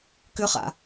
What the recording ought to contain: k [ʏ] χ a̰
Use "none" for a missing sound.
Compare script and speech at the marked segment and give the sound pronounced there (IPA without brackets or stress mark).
ʏ